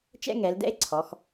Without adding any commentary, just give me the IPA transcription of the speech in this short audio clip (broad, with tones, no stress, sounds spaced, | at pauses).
t͡ʃ ɛ̰˥ ŋ ɛ˩˧ l d ɛ̰˥ e̯ ǀʰ ɔ˩˧ x